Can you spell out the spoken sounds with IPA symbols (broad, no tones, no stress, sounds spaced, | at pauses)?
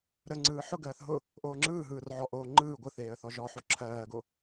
ɾ ə ŋ͡ǀ ɯː ħ ʊ ɡ ɜː θ ɦ ʊ | ʔ oː ŋ͡ǁ ɯː ɦ ɯː r ʕ ɔ ʔ oː ŋ͡ǃ ɯː ɡʷ ɯ θ eː ə̯ θ ɔ ʒ ɔ ħ o ǁʰ ɜː ɡ o